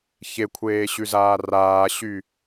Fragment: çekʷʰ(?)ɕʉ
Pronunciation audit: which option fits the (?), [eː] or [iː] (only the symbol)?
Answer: eː